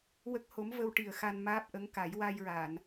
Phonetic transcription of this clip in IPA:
w ə˦˥ k̚ h o˧˥ m v ə˧ w ʈ i˨˩ ə̯ x a˧ n m aː˦˥ p̚ ʔ ə˧˥ ŋ k a˨˩˦ j w a˧ j ɹ a˨˩˨ n

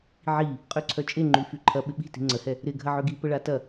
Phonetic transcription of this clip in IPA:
ʕ i | qʼ ø ǀʰ œ t͡ʃʼ e ŋ͡ǃ y f y ǃʰ ɐ ɓ ɪ ɓ i̤ t i̤ ŋ͡ǀ ə h ɛ | ɾ ɪ ɡʱ ɐ ʕ ø ɡ i p ə ɭ a t ɐ

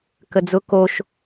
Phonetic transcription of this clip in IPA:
k ə d͡z ʊ k o ʃ

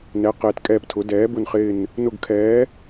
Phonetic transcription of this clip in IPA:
n ɛ˨˥ q eː˨˥ t kʼ ɛː˦˨ p tʰ ʊ˨˥ d ɛː˨˥ b ʊ˦˨ n χ ɪː˦˨ n | n ʊ˦˨ ɡ kʰ ɛː˨˥

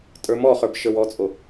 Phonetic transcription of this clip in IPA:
tʼ ə˞ m ɔ χ ə˞ b ʃ ə˞ w ɔ t͡sʼ o

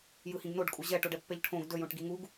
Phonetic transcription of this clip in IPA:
j ɯ h ĩ ɡ n o ɖ kʼ u ʑ ɛ ʈ o ɖ ɛ pː ɛ ʎ ʈʰ õ ɡ d ɵ j õ ʈ ɡ i ŋ u ɡ

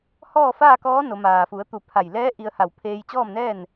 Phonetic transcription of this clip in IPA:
h ɔː˥˨ f aː˥˨ k ɔː˧˥ n o˩˧ m aː˩ f u˩˧ ə̯ t̪ u˧˩ pʰ a˧˩ j l ɛː˧˥ ʔ i˧ ə̯ h a˧˩ w pʰ eː˧ j t͡ɕ ɔː˥˨ m n ɛː˥˨ n

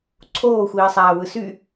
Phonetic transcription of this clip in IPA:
ǀʰ oː xʷ iː sˤ æː w ɯ s y

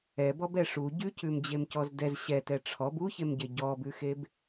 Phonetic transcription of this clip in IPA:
ɛ b ɔ b ɛ ʂ u ɟ ʉ c ʉ m d͡ʑ e m c ɔ z d ɛ z ɕ ɛ t ɛ ʈ͡ʂʰ ɔ b u ç e m ɟ e ɟ ɔ b ʉ x e b

